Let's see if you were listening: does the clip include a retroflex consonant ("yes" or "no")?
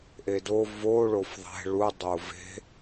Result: yes